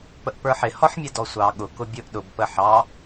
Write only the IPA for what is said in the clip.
pəʔpə˞ħɪ hɔħmʲɛdɔsʷɑ ɠʊ kʊbʲʊʔ ɗʊb pəħɑ

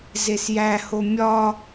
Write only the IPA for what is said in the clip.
zesjæho mʲɒ

